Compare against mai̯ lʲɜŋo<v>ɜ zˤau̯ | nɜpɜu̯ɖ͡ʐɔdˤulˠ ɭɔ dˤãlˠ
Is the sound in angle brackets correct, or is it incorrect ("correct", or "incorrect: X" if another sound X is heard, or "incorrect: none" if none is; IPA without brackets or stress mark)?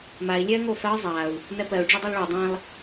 incorrect: f